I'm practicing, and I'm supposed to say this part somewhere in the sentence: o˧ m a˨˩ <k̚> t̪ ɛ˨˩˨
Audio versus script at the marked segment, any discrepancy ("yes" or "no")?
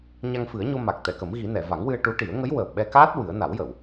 no